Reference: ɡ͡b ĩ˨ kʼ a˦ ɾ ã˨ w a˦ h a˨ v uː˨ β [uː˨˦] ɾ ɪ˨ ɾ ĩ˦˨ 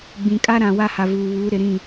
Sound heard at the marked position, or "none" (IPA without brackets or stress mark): uː˨˦